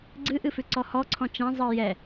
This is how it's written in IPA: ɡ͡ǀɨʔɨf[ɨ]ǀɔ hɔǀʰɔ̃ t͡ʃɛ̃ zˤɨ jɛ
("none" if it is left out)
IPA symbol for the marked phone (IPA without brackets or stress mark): ʉ